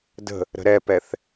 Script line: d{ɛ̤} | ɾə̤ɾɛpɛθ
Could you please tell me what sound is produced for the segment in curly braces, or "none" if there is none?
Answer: ə̤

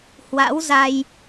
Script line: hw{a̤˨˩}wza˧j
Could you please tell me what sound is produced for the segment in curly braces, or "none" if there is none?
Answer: a̰˧˥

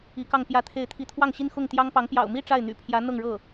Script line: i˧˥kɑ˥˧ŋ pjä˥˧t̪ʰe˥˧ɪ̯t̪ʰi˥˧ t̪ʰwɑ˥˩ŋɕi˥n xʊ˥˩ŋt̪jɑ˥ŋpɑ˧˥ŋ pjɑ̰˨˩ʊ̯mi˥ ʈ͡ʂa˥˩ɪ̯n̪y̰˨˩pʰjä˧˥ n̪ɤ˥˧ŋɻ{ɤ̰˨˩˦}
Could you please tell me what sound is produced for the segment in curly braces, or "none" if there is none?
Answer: ɤ˥˩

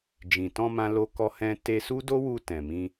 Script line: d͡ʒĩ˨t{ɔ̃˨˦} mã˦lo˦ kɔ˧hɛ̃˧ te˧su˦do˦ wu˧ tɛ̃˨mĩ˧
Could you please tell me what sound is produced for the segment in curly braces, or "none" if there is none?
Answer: ɔ̃˧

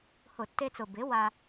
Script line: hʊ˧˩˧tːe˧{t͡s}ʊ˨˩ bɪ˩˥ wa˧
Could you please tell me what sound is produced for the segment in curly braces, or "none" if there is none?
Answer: t͡s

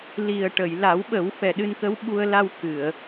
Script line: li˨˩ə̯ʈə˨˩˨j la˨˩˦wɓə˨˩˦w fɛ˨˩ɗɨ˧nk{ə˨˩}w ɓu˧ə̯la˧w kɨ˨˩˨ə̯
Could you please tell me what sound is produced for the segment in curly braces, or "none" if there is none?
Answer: ə˧˥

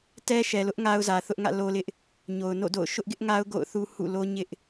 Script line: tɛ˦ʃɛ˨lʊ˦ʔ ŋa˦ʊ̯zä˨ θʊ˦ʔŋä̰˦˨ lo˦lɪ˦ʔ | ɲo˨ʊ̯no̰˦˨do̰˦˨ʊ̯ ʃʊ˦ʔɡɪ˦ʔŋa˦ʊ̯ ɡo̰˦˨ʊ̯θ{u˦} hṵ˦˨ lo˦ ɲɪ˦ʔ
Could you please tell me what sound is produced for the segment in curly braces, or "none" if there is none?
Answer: u˦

